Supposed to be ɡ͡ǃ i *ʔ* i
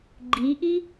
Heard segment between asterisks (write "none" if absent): ʔ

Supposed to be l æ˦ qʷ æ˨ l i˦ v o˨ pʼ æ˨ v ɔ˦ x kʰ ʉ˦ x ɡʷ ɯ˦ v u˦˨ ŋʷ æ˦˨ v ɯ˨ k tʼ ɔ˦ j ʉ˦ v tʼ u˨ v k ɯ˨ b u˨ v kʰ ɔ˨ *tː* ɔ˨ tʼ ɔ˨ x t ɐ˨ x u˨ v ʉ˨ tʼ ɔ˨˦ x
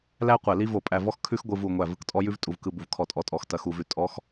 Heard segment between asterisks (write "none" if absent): tʼ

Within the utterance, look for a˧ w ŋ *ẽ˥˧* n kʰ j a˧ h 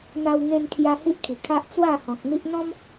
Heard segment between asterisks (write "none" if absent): ẽ˧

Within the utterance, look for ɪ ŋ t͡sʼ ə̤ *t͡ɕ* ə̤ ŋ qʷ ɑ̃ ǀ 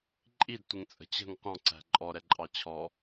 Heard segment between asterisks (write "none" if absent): t͡ɕ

